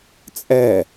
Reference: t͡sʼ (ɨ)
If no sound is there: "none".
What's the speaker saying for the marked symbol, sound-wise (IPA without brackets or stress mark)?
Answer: ɛ